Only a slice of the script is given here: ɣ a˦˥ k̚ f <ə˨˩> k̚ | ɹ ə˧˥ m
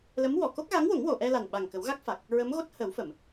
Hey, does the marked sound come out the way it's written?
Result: no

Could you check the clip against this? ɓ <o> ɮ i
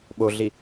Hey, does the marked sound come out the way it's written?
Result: yes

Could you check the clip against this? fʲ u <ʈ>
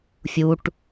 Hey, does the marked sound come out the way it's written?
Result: yes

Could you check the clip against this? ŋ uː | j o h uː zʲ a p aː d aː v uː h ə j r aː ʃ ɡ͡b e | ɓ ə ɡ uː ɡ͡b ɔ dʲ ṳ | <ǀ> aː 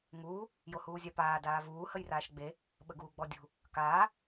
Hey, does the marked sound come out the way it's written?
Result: no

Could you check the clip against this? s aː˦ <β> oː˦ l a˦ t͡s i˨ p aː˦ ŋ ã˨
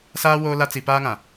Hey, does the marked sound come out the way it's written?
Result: no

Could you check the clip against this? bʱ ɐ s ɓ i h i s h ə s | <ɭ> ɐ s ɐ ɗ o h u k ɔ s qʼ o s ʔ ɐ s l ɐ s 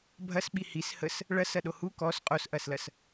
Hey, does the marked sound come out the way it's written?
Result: yes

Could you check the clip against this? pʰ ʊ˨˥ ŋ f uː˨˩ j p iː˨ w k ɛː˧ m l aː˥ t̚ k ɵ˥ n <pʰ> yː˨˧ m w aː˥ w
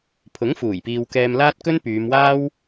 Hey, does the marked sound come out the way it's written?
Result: no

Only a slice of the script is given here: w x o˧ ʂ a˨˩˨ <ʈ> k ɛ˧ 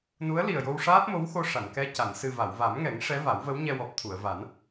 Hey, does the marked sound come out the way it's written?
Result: no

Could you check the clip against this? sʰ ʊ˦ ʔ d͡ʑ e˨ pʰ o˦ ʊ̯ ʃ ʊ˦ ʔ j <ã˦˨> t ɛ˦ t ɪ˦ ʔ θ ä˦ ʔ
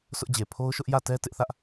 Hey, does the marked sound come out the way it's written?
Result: no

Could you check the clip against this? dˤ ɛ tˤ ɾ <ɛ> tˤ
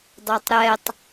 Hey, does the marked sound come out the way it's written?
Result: yes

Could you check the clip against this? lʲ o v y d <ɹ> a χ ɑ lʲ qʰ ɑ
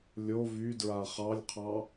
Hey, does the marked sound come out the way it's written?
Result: yes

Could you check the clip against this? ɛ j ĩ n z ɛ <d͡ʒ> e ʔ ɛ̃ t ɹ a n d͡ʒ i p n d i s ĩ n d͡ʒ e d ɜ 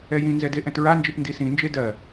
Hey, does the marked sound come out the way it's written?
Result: no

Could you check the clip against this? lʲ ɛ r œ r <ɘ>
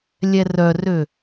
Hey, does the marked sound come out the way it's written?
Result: no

